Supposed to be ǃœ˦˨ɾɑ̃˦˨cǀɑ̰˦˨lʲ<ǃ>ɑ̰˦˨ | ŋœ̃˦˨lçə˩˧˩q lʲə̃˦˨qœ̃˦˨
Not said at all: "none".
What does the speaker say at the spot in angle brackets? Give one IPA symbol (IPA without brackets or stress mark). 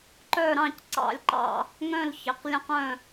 ǃ